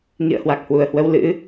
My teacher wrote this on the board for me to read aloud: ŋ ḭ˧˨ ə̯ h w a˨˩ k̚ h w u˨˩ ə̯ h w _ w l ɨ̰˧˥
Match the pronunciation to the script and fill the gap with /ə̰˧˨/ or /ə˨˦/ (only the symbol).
ə˨˦